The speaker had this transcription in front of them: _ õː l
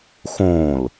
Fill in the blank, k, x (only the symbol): x